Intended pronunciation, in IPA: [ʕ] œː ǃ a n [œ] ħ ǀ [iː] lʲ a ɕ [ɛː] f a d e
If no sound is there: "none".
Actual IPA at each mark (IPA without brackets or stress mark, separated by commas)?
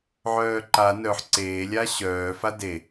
ʕ, œ, eː, œː